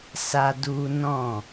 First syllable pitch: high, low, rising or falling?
high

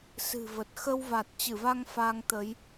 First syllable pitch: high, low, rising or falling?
low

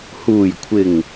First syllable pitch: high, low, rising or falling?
low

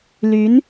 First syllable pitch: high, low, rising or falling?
rising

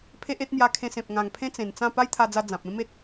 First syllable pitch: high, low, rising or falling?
high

